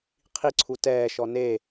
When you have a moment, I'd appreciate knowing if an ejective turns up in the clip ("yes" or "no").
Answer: no